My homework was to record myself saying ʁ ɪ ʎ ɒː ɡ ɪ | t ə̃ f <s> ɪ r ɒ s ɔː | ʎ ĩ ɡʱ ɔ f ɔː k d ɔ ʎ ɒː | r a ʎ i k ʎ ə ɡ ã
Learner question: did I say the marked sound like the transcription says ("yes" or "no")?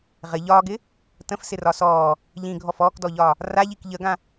yes